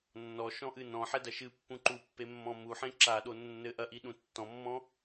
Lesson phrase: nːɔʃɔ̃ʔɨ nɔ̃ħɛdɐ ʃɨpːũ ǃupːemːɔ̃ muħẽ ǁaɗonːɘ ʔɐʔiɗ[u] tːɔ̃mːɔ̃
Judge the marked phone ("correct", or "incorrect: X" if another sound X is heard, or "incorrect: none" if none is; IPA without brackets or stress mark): incorrect: ũ